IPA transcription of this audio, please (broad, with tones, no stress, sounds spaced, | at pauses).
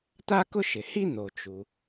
t̪ a˥ k ʊ˥ ʃ ɪ˩ h i˥ n̪ o˩ t͡ʃ u˩